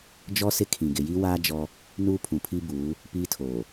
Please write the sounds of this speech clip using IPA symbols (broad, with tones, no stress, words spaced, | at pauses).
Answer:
d͡ʒɔ˦ sɪ˦kʰĩ˨ ɡɪ˨ji˦ waː˦ d͡ʒɔ˦ | nuː˦pʰũ˨pʰi˦buː˨˦ | piː˦tʰoː˨